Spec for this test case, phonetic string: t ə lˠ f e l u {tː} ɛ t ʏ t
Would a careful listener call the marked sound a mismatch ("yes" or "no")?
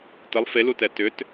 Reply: yes